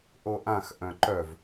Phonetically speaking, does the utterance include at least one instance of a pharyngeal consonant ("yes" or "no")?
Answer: no